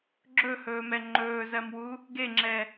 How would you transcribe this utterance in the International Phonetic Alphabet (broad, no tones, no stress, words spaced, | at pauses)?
ɡ͡ǁɵhɵːmɛ ŋ͡ǃɵːzɜmwu | ɡeŋ͡ǁɛ